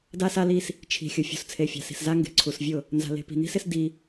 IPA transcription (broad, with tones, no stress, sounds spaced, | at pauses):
d a˦ s a˦ l i˦ s | t͡ʃʰ i̤˨ xʲ ʊ˨ fʲ ṳ˨ s t͡sʰ e˨ fʲ a̤˨ s i̤˨ s z a˦ ŋ ɡ e̤˨ ǀʰ u˨ s vʲ ʊ˦˨ | n z a̤˨ l e̤˨ p i̤˨ n i̤˦ s ɪ˦ s d i˦